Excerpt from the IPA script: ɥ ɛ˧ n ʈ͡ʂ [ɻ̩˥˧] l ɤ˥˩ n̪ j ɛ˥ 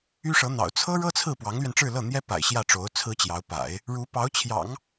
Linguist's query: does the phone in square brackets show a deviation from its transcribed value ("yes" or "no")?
no